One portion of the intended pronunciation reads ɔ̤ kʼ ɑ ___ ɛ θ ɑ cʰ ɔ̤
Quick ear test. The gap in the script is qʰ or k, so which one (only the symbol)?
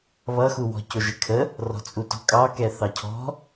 k